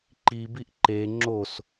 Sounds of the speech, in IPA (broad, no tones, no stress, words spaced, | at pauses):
ǃibiʔ ǃe ŋ͡ǁos